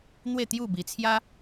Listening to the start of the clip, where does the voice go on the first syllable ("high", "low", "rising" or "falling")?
falling